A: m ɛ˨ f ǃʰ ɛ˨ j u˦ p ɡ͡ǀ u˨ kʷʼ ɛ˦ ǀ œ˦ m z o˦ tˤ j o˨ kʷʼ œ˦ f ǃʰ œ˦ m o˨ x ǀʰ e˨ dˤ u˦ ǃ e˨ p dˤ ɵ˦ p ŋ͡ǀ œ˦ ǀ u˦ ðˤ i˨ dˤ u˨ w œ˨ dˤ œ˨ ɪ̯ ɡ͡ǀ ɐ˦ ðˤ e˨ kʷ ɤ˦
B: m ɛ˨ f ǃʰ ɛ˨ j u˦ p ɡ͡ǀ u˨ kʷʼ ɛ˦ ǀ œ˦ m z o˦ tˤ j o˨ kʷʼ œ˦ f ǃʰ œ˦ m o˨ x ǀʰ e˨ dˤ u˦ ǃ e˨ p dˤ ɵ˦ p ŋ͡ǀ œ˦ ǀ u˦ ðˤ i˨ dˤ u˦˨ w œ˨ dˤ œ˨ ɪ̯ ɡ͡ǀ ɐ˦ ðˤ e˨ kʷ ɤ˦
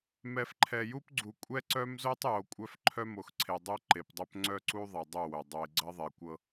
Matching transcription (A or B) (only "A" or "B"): B